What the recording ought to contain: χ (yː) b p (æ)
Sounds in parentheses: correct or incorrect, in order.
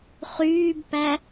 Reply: correct, correct

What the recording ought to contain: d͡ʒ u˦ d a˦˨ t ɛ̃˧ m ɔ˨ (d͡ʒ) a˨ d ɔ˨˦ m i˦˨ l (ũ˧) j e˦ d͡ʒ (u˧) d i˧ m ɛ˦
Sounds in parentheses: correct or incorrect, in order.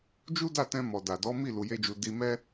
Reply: incorrect: d, incorrect: u˧, correct

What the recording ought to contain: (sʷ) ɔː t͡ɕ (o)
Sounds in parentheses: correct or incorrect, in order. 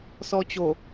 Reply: incorrect: s, correct

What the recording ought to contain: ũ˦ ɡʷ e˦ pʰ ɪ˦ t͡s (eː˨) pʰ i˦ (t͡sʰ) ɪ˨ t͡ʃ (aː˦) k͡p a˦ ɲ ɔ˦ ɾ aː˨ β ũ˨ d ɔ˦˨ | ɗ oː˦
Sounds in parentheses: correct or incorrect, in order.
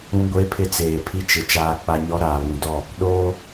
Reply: correct, incorrect: t͡ʃ, correct

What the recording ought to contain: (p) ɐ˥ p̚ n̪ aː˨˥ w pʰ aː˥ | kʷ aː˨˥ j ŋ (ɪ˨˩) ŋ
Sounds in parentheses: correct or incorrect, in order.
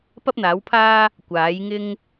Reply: correct, incorrect: ɪ˥

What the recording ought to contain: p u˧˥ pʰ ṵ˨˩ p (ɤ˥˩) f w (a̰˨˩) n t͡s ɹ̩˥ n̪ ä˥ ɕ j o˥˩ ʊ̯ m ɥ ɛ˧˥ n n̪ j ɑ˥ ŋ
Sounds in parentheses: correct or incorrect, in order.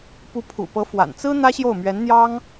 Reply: incorrect: ɤ˧˥, correct

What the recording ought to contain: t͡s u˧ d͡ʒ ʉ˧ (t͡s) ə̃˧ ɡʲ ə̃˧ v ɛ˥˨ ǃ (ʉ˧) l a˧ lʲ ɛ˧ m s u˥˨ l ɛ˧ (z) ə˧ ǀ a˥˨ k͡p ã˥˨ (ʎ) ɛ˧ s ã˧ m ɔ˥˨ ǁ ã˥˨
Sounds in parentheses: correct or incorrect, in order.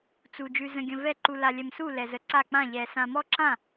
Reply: incorrect: z, incorrect: u˧, correct, correct

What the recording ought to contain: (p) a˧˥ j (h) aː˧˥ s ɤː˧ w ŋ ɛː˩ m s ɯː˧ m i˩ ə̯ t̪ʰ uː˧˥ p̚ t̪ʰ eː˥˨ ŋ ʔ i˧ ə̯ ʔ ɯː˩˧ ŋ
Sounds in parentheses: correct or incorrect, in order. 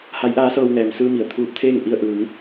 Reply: incorrect: h, incorrect: ʔ

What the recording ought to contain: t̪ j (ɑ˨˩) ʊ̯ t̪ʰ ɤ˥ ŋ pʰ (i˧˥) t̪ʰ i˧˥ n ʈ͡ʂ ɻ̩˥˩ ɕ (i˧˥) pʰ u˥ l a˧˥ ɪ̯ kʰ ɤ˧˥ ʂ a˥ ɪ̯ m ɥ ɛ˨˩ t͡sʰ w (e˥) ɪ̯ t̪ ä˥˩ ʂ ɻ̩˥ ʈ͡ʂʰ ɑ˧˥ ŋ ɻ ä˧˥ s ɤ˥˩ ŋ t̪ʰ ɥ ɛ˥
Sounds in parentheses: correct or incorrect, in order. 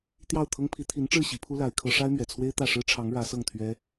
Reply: incorrect: ɑ˥˩, correct, correct, correct

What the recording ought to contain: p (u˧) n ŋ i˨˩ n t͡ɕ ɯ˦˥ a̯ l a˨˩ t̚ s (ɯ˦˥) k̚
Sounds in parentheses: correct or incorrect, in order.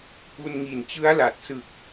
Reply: correct, incorrect: ɯ˨˩

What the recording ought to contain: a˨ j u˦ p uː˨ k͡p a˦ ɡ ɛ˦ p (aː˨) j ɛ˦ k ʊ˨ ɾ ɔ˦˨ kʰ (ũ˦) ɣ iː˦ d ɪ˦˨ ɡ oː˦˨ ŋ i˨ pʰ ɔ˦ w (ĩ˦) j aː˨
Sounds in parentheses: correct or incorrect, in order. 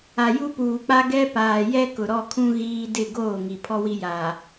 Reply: correct, correct, incorrect: i˦

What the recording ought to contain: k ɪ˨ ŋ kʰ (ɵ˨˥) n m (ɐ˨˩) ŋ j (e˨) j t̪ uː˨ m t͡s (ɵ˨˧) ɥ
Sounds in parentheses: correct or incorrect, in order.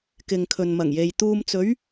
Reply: incorrect: ɵ˨, correct, correct, correct

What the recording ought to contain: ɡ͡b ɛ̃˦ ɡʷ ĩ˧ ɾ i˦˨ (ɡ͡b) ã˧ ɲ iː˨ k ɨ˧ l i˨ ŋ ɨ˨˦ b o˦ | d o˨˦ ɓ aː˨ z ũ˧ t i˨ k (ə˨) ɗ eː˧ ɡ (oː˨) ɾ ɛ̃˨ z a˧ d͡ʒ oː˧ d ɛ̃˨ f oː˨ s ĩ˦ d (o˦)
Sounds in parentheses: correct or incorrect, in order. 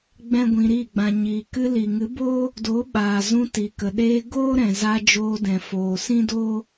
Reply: correct, correct, incorrect: oː˦, correct

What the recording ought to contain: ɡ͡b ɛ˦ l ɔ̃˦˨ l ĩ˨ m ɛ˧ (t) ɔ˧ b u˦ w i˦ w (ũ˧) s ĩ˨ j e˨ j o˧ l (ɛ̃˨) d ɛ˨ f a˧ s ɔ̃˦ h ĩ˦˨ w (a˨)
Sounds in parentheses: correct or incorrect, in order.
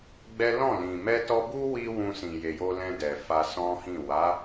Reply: correct, correct, incorrect: ɛ̃˧, incorrect: a˨˦

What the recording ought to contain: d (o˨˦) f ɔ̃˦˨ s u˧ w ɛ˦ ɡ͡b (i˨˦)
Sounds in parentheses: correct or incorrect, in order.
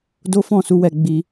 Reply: incorrect: o˦, incorrect: i˦

